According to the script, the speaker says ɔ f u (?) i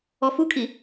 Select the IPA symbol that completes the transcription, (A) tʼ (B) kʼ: B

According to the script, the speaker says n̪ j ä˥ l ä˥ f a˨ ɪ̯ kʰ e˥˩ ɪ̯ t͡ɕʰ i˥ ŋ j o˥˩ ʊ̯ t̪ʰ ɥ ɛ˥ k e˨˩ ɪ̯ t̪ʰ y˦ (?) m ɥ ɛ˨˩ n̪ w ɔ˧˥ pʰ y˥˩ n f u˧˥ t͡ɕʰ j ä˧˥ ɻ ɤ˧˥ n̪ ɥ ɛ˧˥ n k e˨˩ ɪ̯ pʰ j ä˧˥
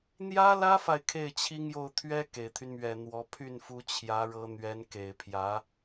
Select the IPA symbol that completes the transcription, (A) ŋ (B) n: B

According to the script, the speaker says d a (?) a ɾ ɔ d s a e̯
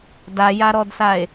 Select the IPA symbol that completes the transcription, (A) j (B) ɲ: A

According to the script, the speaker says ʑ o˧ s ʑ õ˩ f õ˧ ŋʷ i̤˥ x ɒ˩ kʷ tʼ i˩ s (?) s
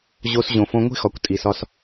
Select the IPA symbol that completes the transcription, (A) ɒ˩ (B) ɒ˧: B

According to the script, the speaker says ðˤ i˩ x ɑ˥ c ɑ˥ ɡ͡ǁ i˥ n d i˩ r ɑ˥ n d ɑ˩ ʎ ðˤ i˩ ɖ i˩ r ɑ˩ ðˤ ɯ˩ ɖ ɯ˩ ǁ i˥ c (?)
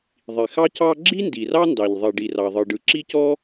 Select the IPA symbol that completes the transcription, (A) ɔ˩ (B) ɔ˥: B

